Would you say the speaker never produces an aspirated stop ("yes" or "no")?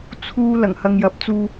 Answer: no